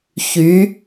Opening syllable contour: rising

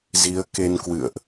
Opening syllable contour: rising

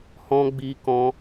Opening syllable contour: high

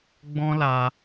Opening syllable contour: high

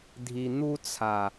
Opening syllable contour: low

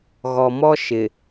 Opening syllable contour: low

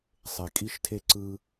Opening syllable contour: low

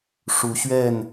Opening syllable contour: rising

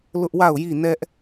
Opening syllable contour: high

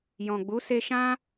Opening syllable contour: low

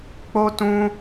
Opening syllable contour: high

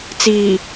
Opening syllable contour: low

